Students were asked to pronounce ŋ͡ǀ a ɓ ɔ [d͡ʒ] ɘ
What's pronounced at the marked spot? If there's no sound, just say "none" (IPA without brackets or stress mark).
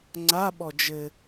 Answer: d͡ʒ